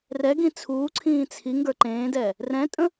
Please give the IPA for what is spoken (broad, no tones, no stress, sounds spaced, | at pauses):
r ɛ ɡ ĩ t͡sʰ uː ǀʰ ĩː t͡sʰ i ŋ ɡ ə˞ ǃ ẽː d ɛː | r ɛ̃ tʼ ə̃